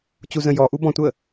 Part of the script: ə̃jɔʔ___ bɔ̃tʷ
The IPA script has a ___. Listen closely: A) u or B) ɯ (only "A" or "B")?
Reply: A